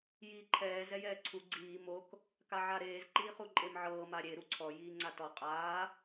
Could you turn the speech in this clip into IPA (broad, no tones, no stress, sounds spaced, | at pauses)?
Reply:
j iː ǃʰ ɛː z ɛ j ɛː ǀʰ u ɡ͡ǀ iː m o k | k a ʕ a ɾ eː z ǃ iː χ u ǃʼ e m ʕ ɤː m a ɾʲ e ɾ u ǀʰ ɔ j iː ŋ͡ǀ a t ɔ qʼ aː